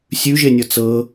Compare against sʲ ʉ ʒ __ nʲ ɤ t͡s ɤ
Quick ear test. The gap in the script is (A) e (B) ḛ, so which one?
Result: A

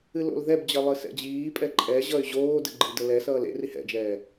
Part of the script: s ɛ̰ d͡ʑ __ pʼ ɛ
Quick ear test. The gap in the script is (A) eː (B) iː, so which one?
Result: B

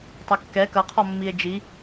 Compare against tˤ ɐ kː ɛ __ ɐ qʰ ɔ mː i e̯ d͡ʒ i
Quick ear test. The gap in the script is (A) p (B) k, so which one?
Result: B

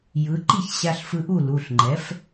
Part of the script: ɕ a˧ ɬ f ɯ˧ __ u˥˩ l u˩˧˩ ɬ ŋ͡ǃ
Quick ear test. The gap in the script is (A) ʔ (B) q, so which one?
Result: A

